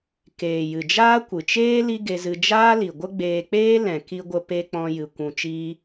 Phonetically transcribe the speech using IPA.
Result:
keː˨jɨ˨ d͡ʒaː˦kʷɨ˨t͡ʃeː˦ li˦ɡe˧zɨ˧ d͡ʒaː˦li˨ɡʷə˦ ɡ͡beː˧k͡peː˦ lɛ̃˨ki˧ɡʷə˧ pe˧ k͡pɔ̃˧jɨ˨ kʷũ˨ t͡ʃiː˧

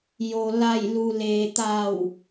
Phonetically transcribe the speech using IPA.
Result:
jo˩la˧˩jlu˩ leː˩t̪a˧˩w

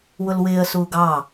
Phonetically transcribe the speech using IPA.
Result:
wʊlwɪːə̯ suːɡɑ

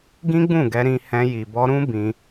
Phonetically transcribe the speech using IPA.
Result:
ɡĩ˦ɡ͡bũ˦˨ɡɛ˧ ɾĩ˧hɛ̃˧ ji˨bɔ˧ ɾũ˦ bĩ˧

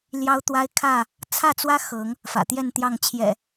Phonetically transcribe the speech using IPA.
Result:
ljɑ˦ʊ̯t̪wa˦ɪ̯kʰä˥˨ | t͡sʰä˥˨t͡swä˦ xɤ˨˦ŋ | fä̰˨˩t̪jɛ˥˨nt̪jɑ˥˨ŋ t͡ɕʰjɛ̰˨˩

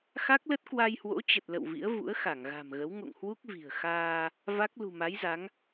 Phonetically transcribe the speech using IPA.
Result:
xa˦˥k̚lə˦˥t̚ kwa˧jhwo̰˧˥t͡ɕə˨˩t̚ lə̰˧˨wvḭ˧˥ə̯vṵ˧˥ə̯ xa˧˩ŋɣa̤˨˩mɣə˨˦w ŋo̰˧˨ŋhwu˦˥k̚ vi̤˨˩ə̯xaː˧ | va˦˥k̚ lṳ˨˩ma˨˦jza˨˦ŋ

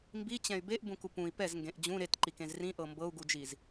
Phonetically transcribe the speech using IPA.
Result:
mbit͡ɕɛ̃y̯ beʔbũku pũi̯ pɛzŋɡẽʔ d͡ʑũ ɾetǃikẽz rĩʔɤ mbɤu̯ɡud͡ʒiz

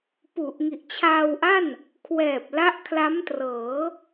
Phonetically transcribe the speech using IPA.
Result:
pu˨˩ʔŋi˨˩ʔt͡ɕʰaː˧wʔa˥˩n | kʰwɛː˨˩p̚la˦˥ʔ kʰla˦˥mtrɤː˩˦

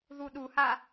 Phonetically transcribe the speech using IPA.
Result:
ðuɗuha

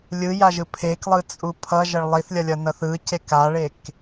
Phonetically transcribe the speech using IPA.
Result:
lʲɯjaʒɯ pʰeklˠɯt͡sʼu pʰʌʒʌɭ lˠiθlʲʌlʲʌnʌθ ɯcek aɭek

